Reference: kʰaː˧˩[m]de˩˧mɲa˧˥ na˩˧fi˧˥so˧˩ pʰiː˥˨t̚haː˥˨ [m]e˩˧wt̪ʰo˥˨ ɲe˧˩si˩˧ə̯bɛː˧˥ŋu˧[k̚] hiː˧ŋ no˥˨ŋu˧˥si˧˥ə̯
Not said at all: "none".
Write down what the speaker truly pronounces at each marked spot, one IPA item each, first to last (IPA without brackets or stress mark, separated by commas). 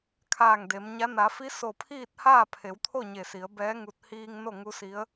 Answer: ŋ, pʰ, t̚